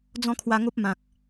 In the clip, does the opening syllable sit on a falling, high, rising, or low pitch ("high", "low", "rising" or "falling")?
high